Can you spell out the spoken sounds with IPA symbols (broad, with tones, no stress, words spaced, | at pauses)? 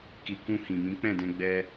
ki˨kũ˧hĩ˨ mĩ˨˦k͡pɛ̃˦˨dɛ̃˧ ɡ͡bɛ˦